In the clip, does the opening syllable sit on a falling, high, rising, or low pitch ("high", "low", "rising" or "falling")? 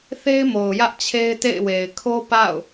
high